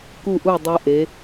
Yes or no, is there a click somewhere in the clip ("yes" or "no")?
no